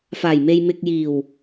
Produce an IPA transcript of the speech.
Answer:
faː˨˩jme˨j mɪ˨k̚jiː˨˩w

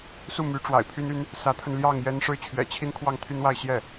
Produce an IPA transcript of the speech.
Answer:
su˥˩my˧˥ ʈ͡ʂwa̰˨˩ɪ̯pʰy˥ny˥n | sä˧˥t̪ʰə˧nljɑ˥˩ŋ jɛ˥n ʂɻ̩˥˩t͡ɕʰɥɛ̰˨˩t͡ɕʰi˥n kʰwɑ˥˩ŋt̪ʰy˥nwa˥˧ɪ̯ ɕjɛ˥˩

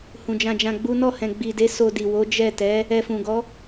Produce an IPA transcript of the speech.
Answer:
hũ˨d͡ʒã˧d͡ʒã˧ ɡ͡bu˦ nɔ˦˨hɛ̃˨ɡ͡bi˨de˨˦ so˧di˨ wo˨˦d͡ʒɛ˦˨tɛ˨˦ | ɛ˧fũ˨ɡɔ˨˦

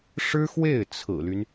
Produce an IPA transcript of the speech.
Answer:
ʂɻ̩˥xwe˥˩ɪ̯ t͡sʰɹ̩˨˩ly˦n

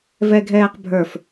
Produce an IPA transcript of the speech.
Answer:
vɛɡʱɛːqbʱə˞f

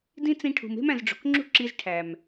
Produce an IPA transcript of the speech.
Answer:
dĩ˦t͡sĩ˧ʈʰṳ˨m e̤˦mæ̃˨zɖ͡ʐo̤˨kŋ͡ǁṳ˦ ǁi˧zʈʰæ˨m

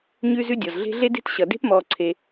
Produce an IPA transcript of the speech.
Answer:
ɲʉː˦zʉ˦dʲɔ˩z ɮe̤˦ɮe˥de̤˥t ɕʌ˩de̤˥pmɔː˨ ǀʰe˨

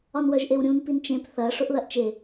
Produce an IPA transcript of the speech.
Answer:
ɒnwœʒʔewɾʲũn pint͡ʃẽp θɐ ʂʊʔðɐʔt͡ʃe

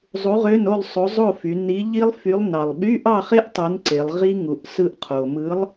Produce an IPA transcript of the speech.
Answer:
zˤu˨˥ʁø˧˥˧no˥˨lˠ sˤo˨˥zˤo˥˨fy˩˧ ni˨˥ʎi˦˥lˠfy˨˥lˠ nɑ˩lˠɓy˧˥˧ʔɑ˥˨χe˦˥ʔ tˤu˨˥nǀe˩˧lˠ ʁi˦˥ŋu˩ʔ sɯ˦˥ʔqʰo˩ mɯ˨˥lˠ

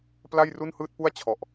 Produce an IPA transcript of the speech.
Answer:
pla˥˩jru˥˩n hɯː˥˩t̚pu˥˩a̯ t͡ɕʰɔ˨˩ʔ

